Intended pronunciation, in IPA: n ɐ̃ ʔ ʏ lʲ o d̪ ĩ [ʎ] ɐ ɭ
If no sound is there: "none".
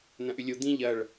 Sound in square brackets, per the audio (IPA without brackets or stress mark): ʎ